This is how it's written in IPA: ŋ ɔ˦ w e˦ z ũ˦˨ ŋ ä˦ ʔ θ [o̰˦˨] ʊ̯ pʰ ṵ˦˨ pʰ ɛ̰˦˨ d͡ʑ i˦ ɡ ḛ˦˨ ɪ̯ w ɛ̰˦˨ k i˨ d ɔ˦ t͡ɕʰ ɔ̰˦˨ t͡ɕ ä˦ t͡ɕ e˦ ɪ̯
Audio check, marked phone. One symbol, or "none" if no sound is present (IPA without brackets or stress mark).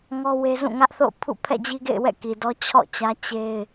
o̰˦˨